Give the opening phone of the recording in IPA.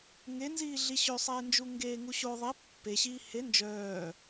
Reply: ŋ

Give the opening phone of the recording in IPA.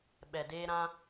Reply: ɓ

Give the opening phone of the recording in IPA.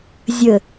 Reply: zʲ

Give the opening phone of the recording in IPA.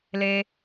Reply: l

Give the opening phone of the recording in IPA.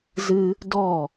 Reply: z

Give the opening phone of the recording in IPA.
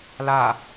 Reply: l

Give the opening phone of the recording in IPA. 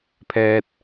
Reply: pʰ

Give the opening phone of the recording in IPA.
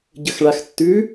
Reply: ɟ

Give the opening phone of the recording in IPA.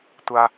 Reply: tʷ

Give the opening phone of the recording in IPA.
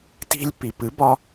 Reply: t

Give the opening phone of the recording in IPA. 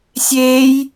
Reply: sʲ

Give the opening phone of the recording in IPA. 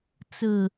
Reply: t͡s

